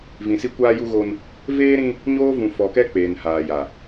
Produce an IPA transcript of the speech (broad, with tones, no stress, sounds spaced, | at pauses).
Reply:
v ĩ˨ s i˦ kʷ aː˦ j u˦ ɣ o˦ n | v eː˦ ɾ ĩ˦ | ɲ oː˦ v ũ˨ f ɔ˨ k ɛ˦ k͡p eː˨ n h aː˨ j a˨